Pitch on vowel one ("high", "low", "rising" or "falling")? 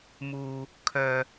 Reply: low